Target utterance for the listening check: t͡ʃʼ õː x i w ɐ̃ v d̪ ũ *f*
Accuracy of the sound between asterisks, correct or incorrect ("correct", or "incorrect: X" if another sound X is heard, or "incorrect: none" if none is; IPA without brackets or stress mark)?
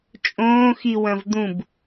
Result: incorrect: b